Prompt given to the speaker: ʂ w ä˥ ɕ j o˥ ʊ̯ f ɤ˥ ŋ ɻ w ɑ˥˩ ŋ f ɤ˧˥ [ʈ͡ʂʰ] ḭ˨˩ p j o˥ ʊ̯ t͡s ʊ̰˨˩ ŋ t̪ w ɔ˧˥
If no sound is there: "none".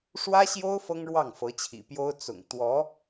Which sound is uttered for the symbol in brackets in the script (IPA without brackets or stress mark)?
t͡ɕʰ